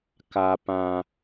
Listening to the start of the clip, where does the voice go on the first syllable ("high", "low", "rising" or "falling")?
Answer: low